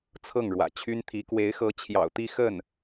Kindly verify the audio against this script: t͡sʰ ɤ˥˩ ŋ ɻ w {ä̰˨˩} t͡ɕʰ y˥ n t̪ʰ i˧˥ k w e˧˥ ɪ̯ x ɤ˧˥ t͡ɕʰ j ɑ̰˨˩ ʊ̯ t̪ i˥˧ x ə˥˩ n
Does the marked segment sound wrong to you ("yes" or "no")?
no